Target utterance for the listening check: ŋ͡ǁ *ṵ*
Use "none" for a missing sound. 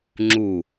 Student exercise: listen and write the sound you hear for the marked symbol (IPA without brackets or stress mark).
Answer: u